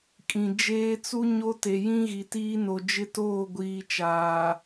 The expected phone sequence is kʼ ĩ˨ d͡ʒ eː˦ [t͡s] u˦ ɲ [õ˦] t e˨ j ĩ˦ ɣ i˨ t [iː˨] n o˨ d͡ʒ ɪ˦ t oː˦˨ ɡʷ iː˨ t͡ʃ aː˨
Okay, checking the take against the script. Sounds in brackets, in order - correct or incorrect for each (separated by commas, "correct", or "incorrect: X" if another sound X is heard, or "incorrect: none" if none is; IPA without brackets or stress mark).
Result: correct, incorrect: o˦, incorrect: iː˦